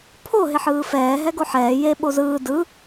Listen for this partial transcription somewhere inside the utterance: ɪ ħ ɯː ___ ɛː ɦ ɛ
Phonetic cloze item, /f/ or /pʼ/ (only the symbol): f